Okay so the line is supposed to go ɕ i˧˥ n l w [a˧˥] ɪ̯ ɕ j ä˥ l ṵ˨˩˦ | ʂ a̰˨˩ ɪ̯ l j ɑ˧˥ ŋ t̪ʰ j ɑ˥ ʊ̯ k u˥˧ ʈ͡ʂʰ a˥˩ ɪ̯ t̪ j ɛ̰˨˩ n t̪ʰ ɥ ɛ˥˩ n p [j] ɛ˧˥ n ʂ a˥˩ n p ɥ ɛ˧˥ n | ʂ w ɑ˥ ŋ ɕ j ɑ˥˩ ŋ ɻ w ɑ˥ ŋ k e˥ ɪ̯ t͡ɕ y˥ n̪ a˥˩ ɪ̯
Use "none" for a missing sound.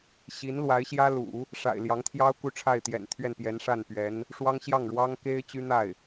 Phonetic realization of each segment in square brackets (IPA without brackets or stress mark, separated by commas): a˧˥, j